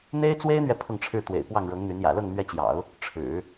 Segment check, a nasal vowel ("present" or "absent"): absent